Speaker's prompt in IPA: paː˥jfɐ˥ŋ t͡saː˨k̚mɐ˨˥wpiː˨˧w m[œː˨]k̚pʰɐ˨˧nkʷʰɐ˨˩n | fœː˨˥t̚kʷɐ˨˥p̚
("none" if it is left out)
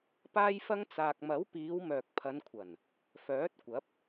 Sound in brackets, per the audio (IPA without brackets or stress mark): œː˨